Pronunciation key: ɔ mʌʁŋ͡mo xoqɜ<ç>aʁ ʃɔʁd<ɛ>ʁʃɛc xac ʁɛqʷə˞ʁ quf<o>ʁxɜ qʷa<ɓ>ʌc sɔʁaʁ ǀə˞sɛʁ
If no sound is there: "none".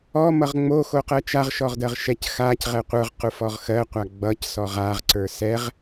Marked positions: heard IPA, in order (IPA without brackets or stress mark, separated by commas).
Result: t͡ʃ, ɜ, ɔ, ɡ͡b